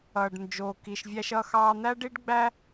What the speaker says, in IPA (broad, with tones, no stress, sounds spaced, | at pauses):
ʌː˩ ɖ n d͡ʒ oː˩ k i˩ ʃ vʲ æ˧ ʃ ʌː˧ x ɑː˧ n̪ æ˥ ɖ i˥ ɖ ɡ͡b æ˥